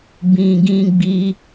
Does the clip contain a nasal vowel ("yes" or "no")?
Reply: yes